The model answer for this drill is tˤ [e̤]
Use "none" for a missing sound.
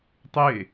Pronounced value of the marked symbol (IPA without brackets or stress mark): e